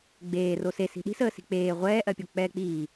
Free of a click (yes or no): yes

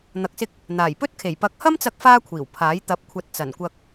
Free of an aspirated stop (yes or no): no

